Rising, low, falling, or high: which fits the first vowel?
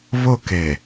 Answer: falling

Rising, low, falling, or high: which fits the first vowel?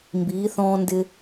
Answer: rising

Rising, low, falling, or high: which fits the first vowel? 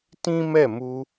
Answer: high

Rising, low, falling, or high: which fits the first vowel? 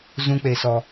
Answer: high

